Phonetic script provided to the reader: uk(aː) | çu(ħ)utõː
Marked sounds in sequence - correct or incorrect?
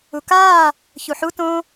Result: correct, correct

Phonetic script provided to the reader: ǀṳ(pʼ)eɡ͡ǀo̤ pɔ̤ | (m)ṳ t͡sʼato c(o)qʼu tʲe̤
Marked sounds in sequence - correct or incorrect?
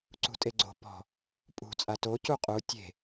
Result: incorrect, incorrect, incorrect

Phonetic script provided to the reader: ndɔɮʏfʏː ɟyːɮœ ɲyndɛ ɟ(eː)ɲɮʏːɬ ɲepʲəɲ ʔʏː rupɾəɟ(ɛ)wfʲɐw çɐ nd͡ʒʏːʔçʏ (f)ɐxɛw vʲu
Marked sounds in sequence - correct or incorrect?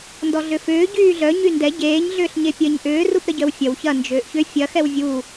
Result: correct, incorrect, incorrect

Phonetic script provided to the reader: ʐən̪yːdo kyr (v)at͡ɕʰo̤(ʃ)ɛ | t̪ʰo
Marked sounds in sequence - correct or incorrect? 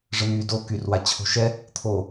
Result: incorrect, correct

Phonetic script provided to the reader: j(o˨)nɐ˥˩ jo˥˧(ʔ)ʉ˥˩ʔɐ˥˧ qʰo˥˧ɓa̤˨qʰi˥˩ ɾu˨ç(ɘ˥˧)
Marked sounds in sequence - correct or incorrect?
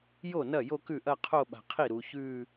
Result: incorrect, incorrect, incorrect

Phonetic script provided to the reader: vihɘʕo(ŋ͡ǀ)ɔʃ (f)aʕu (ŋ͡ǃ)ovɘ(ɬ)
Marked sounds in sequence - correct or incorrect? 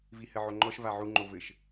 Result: incorrect, incorrect, correct, incorrect

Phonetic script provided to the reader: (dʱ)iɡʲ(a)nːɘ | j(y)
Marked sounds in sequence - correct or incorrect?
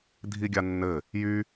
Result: correct, correct, correct

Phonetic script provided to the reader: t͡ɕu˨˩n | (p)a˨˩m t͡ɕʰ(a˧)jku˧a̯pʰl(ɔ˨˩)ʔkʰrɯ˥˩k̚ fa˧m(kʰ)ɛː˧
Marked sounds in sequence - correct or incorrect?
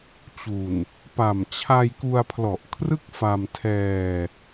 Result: correct, correct, correct, incorrect

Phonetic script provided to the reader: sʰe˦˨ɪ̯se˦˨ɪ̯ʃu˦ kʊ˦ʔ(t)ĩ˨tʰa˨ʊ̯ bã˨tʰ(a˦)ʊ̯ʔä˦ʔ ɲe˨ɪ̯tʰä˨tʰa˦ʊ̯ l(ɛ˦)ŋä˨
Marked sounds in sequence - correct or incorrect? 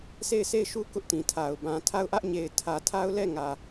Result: correct, incorrect, incorrect

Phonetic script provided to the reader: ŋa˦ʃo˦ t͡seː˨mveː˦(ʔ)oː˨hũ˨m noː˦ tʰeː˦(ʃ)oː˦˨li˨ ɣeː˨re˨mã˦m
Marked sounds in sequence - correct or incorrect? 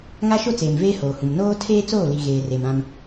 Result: incorrect, incorrect

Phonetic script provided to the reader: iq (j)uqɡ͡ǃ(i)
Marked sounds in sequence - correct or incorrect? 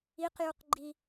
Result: correct, correct

